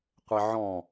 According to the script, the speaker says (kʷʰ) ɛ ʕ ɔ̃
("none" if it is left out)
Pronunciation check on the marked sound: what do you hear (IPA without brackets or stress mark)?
qʷ